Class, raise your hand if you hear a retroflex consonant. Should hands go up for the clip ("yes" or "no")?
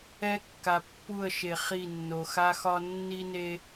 no